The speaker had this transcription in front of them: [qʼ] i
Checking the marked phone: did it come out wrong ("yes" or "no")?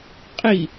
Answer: no